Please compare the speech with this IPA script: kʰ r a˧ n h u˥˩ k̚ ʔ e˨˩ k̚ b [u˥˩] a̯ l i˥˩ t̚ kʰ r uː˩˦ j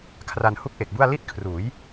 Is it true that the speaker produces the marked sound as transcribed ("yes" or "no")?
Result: yes